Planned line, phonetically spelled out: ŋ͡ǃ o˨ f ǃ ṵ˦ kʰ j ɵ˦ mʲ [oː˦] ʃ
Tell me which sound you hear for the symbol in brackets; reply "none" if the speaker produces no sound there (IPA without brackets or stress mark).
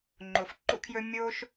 oː˦